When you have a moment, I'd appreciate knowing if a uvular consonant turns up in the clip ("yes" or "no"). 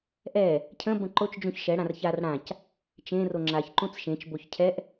no